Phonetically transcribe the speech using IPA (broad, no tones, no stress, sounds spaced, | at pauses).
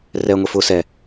r ɛ ŋʷ e f ʊ s ɛ